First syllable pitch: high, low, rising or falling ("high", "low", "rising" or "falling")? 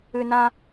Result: high